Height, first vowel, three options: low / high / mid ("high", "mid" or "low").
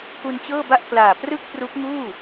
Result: high